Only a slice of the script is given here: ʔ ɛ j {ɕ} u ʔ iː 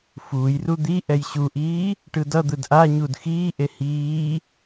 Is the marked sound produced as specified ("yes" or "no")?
yes